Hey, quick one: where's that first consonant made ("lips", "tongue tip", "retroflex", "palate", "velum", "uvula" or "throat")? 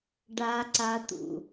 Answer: retroflex